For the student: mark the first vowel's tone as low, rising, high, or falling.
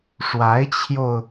rising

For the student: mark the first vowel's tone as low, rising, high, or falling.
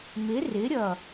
rising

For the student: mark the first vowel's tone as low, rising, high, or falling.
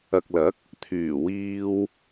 low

